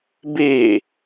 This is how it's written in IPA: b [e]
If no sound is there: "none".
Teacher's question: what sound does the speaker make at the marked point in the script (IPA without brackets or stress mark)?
e